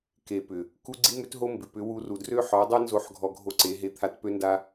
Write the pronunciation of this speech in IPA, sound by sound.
ke˨pʏ˨ | ku˦ ɡ͡ǀi˦mʏ˦tɦo˦mbɪ˨ pʏ˨˦wu˧ru˨ drø˦ħɔ˨˦dˤɛ˦nzo˧ħ ɡʱɔ˧ɡʱo˧ǀe˨˦ɦe˧ t̪ʰa˧tpø˦nda˦

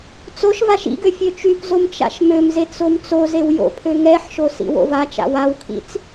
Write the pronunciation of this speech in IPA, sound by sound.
t͡soʃvaʃ ḭɡø fʲøt͡ʃypzom t͡ʃa̰ʃmømzet͡s omt͡sozew jo̰pʰø ŋɛħʃo sḭwo̰vat͡ʃa̰ wawkʰḭt͡s

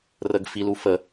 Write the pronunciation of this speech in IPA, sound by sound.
rəɡfilu fə

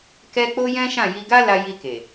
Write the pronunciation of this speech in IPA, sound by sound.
kɛ˦ k͡po˦jɛ̃˦ʃã˦˨ ji˧ɡa˦la˧ ji˧ke˨

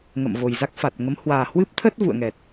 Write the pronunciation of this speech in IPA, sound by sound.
ŋə̰˧˨mvo˨˩jza˦˥k̚fa˨˩t̚ ŋə˨˦mhwaː˨˩hwɨ˦˥p̚ t̪ʰə˦˥t̚ vṵ˧˨ə̯ŋɛ˨˩t̚

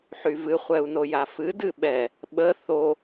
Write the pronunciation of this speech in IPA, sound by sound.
ħyvɨ χʷɛu̯nojafɨ dɨɓɛ | ɓə θo

